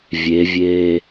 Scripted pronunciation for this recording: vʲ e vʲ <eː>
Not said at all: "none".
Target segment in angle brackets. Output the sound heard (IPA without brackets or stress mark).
eː